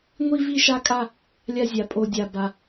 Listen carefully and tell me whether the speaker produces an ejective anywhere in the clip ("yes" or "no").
yes